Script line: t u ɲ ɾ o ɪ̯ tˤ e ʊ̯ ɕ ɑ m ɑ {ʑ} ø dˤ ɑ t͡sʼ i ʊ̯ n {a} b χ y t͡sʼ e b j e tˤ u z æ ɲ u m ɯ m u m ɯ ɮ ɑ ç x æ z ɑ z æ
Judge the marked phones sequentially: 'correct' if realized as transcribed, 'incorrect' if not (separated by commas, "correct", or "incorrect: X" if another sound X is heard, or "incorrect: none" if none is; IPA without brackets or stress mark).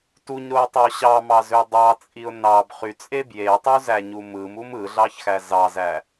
incorrect: z, incorrect: ɑ